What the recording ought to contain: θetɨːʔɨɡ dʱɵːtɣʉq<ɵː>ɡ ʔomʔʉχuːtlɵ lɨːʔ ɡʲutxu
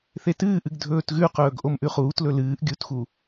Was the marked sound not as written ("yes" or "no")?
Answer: no